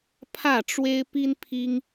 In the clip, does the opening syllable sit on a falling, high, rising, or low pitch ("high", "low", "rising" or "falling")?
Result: falling